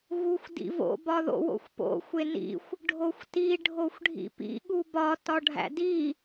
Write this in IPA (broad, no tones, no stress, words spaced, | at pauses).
ɣuxʷdḭvo̰ bɒðo̰wo̰xʷpo̰ xʷenḭxʷ | ɖʱoxʷti ɖʱoxʷɖʱḭpḭ ɠubɒ tɒɖʱæ̰di